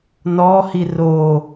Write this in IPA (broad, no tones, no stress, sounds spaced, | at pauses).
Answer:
n ɔ h i r o